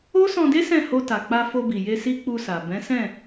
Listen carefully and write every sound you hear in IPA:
o˦ s ɔ̃˧ d e˦ s ɛ̃˦˨ h o˧ t a˨ k͡p a˧ f o˧ b i˨ j e˧ s i˦ k͡p u˧ s a˨ b ɛ̃˨˦ s ɛ̃˦˨

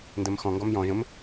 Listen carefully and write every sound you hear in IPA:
n d ɜ m x ɔ̃ ŋ ɡ ɔ m j ɔ̃ ʒ ə̃ m

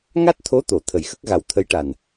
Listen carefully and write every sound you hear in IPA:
ŋ a˦˥ t̚ t̪ʰ o˧˥ t̪ o˨˩˨ t̪ʰ ə˨˩ j x ə˦˥ k̚ ɣ a˨˩ w t̪ʰ ə˧˥ j ʈ a˨˩ n

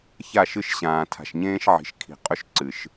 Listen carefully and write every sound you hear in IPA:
ç a˦˨ ʃ ɨ˦ ʃ ɕ ãː˨ tʰ a̤˨ ʃ ɲ ẽː˦ ʃ ʕ i̤˨ ʃ kʰ i̤˨ qʼ ɵ˦ ʃ ǀ ɨ˨ ʃ

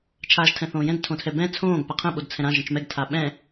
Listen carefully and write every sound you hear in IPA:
t͡ʃʰ aː ʒ tʰ ɛ̃ θ õː j ɛ̃ d tʰ õ tʰ ɛ b ɛ̃ t͡sʰ õː ɡ p a qʰ ə̃ ɓ o d t͡sʰ ɛ̃ ɾ ã ʒ ə̃ t͡ʃ m ɛ ɡ tʰ a ɓ ɛ̃

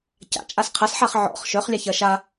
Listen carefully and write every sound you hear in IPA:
c a̰ t͡ʃʼ a s qʰ ɐ s ħ a χ ʕ ɔ̰ χ ʃ œ χ lʲ a ç ɐ ʃ a

